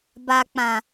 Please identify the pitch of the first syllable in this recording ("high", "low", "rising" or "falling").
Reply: low